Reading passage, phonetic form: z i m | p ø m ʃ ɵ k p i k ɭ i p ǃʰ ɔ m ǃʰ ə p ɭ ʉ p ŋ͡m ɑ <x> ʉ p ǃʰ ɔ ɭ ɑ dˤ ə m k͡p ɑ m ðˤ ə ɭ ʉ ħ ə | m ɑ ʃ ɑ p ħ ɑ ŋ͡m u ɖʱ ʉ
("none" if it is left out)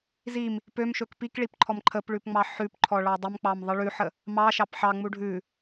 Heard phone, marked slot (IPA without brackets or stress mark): ħ